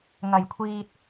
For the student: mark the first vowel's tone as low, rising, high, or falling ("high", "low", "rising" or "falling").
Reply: low